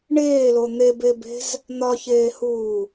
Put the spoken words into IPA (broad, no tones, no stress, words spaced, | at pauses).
ɳeːlo n̪ebebe̤z | n̪ɒçeːhuː